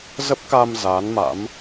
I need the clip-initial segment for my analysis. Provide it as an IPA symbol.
z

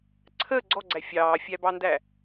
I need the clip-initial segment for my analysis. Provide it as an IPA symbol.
ǀʰ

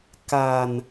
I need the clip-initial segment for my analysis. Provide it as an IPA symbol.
k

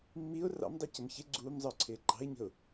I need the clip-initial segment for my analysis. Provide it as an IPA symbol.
mː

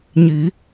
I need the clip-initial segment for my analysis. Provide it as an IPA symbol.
ɲ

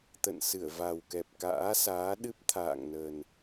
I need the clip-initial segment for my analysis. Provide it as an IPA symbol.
t̪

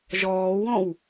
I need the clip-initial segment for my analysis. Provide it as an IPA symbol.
ʒ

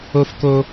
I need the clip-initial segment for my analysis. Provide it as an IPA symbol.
o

